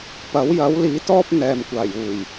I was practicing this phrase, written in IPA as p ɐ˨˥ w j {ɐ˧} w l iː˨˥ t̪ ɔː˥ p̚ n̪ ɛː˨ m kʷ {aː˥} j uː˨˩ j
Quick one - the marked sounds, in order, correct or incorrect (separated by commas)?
incorrect, incorrect